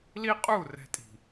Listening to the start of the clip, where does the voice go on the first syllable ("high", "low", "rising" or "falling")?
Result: high